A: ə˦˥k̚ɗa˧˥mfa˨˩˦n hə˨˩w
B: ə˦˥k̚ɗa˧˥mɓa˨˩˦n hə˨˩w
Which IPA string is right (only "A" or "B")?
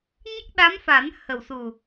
A